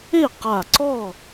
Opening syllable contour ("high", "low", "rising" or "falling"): falling